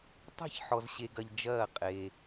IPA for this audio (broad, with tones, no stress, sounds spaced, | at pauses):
tˤ e̤˥˨ ç ħ ɔ˧ z ɕ e˧ ɡ ɐ˧ ʎ d͡ʒ ɐː˥˨ qʼ e˧